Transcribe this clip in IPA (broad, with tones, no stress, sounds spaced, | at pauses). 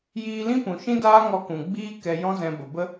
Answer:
j iː˧ l ĩ˦ p ũ˨ ʃ ĩ˦ d aː˦ ŋ ɔ˧ k ũ˨ ɡ͡b iː˧ k ɛ˨ j ɔ̃˦ z ɛ̃˧ b ə˨ b ə˦